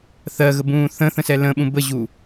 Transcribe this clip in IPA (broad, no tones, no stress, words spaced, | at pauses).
θɜɣəbũː θə̃θə̃sɛ lə̃ɓũ bəʑu